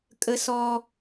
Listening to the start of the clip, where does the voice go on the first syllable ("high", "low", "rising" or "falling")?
high